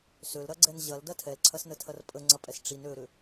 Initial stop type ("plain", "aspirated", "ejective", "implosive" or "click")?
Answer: click